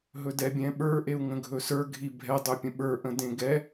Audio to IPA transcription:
ɦ ɵ d ɛ bʲ ɛ̃ ɓ ə˞ ʔ e u̯ ŋ ə̃ ɡʱ ɵ s ə˞ ɡʱ i bʱ ɛ dˤ ɵ pʲ ə̃ ɓ ə˞ ʔ ə̃ d ẽ ɡ ɛ

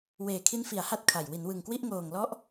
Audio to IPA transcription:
w eː˨˩ kʰ i˦˥ n f i˩˦ a̯ h a˦˥ t̚ kʰ a˨˩ j w i˩˦ n w ɯ˨˩ ŋ k w i˥˩ ʔ ŋ oː˨˩ ŋ l ɔ˦˥ ʔ

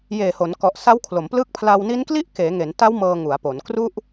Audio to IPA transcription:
j eː˨˩ h o˩˦ n k ɔ˨˩ ʔ s a˦˥ w kʰ l o˩˦ m p l ɯ˦˥ k̚ pʰ l a˧ w n i˦˥ n k l i˥˩ ʔ k eː˩˦ ŋ e˩˦ n t a˦˥ w m ɤː˧ ŋ u˩˦ a̯ p o˩˦ n k r u˥˩ ʔ

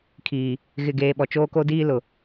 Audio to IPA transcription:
kʰ iː˨ | ɣ ɪ˦˨ ɡ eː˦ ɓ ɔ˨ t͡ʃ oː˦ k o˦ d iː˦ l ʊ˨

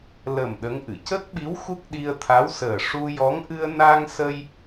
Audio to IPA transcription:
l ə˨˩ m ɗ ə˧˥ ŋ ʔ ɨ˨˩˨ c ə˦˥ k̚ ɓ i˧˥ w x u˦˥ k̚ ɗ i˧ ə̯ t̪ʰ a˧˥ w s əː˨˩ ʂ u˧ j ɔ˧˥ ŋ ʔ ɨ˧ ə̯ n a˧ ŋ s ə˧ j

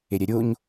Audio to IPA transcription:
e ɾʲ ɛ ɾʲ o ɲ

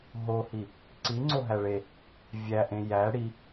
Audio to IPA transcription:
ɦ o h i | ǀ i ŋ͡ǀ o ɦ æ ɭ e | vʲ æ ʔ ẽ j æ ɽ i

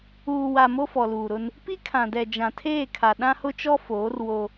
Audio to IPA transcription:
uː˨ w a˨ m o˦ f ɔ˨ l uː˨ ɾ ʊ˦ n | p i˦ kʰ ã˨ d ɛ˨ d͡ʒ ã˨ tʰ eː˦˨ kʰ a˨ ɗ ã˦ h ʊ˦ t͡ʃ ɔ˦ f oː˨˦ r w o˦

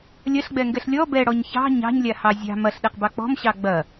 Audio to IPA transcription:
lʲ ɐ ɬ ɡ͡b ɛ ŋ ɡ ɛ ɬ lʲ ɔ b ɛ ɽ ɔ ɲ ç ɑ̤ ɲ ɑ̤ ɲ lʲ a h ɑ zʲ ɑ̤ m ɐ ɬ ɗ ɛ q b ɑ k͡p ɔ̤ m ɕ ɑ ɡ͡b ɐ

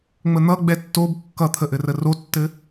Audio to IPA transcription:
ŋ͡m ə n̪ ʌ ɡ͡b ɛ tː o b kː ʌ t̪ʰ ə ʔ ɘ r ə r o tː ɘ

